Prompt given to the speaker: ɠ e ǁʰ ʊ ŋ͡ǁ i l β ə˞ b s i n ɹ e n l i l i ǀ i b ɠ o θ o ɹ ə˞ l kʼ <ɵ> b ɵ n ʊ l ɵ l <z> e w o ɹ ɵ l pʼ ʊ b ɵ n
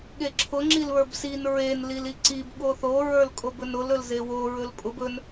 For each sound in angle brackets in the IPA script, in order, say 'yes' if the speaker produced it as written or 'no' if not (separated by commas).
no, yes